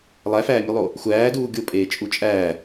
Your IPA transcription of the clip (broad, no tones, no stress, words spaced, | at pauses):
lˠæfæːmʲulˠo | xʷæːduː ɡʲopʼeːt͡ʃʼu t͡ʃʼæː